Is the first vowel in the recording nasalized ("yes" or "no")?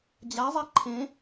no